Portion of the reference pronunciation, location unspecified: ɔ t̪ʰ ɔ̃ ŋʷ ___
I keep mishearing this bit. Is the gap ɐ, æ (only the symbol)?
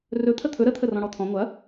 ɐ